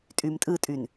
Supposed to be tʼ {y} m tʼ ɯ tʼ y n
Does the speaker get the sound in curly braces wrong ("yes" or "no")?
no